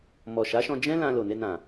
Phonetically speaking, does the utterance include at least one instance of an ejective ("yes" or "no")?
no